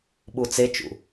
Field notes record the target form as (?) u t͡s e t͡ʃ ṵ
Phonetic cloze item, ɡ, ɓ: ɓ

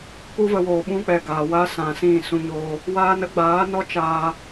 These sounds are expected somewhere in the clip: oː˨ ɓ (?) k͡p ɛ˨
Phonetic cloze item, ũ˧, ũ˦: ũ˦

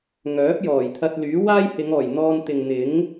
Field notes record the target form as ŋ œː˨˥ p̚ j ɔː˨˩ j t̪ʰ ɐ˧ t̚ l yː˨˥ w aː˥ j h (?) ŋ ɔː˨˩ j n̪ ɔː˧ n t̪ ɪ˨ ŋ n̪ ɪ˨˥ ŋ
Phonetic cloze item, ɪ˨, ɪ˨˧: ɪ˨˧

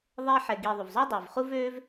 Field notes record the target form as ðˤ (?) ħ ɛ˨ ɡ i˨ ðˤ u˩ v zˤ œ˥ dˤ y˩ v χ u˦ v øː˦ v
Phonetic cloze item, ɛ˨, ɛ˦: ɛ˦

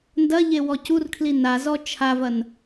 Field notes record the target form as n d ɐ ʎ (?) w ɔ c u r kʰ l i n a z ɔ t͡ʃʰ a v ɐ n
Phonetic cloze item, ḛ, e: e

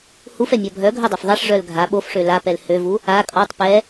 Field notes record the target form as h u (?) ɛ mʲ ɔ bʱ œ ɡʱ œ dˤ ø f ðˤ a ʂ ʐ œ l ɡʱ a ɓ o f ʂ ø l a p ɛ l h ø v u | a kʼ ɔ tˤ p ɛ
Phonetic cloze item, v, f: f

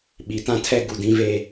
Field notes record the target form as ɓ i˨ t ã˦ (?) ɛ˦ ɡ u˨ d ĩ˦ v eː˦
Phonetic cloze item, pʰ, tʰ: tʰ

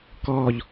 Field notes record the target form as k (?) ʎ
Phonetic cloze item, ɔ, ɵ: ɔ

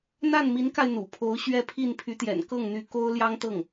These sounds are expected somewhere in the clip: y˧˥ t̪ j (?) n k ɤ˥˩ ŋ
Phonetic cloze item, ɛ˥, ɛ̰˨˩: ɛ̰˨˩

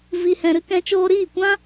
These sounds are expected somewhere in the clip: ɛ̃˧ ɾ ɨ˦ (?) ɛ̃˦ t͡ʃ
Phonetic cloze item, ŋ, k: k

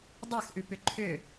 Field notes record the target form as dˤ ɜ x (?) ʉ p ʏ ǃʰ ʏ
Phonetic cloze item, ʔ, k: ʔ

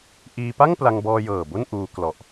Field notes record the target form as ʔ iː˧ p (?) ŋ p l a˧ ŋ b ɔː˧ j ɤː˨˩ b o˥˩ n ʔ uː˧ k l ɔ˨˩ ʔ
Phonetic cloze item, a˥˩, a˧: a˥˩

